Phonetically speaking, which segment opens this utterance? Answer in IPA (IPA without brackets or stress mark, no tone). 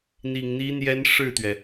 n̪